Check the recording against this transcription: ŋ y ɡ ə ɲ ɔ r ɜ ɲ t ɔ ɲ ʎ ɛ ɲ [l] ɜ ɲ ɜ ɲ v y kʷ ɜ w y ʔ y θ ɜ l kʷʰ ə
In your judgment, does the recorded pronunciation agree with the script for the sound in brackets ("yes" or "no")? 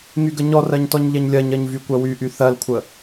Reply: no